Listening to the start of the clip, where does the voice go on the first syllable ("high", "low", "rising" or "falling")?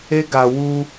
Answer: high